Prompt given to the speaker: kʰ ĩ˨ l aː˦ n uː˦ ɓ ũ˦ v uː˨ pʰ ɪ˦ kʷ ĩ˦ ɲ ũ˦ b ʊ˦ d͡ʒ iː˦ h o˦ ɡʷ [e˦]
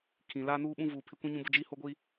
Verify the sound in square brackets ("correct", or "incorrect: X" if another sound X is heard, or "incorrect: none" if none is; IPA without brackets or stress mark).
incorrect: i˦